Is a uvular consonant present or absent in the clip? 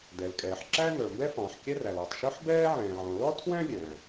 absent